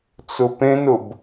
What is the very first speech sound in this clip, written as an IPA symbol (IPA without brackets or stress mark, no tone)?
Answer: t͡s